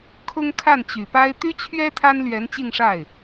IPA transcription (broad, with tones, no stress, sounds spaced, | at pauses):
kʰ ʊ˥ ŋ kʰ a˥˩ n t͡ɕ y˨˩ p a˥ ɪ̯ t̪ y˥ t͡ɕʰ ɥ ɛ˥ t̪ʰ a˥ n l ɥ ɛ˧˥ n t͡ɕ i˥˧ ŋ ʂ a˥˩ ɪ̯